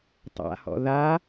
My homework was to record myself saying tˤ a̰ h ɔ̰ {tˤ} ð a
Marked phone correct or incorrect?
incorrect